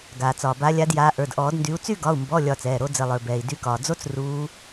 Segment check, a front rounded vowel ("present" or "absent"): present